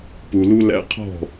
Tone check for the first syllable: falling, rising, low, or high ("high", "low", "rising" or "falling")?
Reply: low